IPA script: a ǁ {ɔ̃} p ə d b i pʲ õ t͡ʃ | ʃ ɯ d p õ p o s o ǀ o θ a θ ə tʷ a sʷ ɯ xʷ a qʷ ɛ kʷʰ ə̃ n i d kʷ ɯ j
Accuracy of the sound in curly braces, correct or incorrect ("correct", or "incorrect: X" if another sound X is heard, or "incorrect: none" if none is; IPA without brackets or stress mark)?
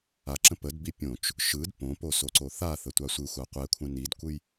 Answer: incorrect: ə̃